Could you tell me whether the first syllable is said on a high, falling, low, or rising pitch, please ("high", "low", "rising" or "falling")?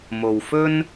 low